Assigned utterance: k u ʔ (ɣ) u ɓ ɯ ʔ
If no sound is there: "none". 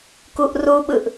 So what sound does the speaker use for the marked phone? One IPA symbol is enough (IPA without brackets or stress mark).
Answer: r